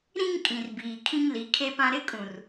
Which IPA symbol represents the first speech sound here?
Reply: ɾ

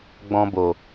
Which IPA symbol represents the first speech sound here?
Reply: ɡ͡b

